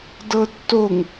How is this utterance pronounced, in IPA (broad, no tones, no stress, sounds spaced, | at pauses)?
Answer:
d ɤ tː o ŋ